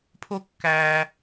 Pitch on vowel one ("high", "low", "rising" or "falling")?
high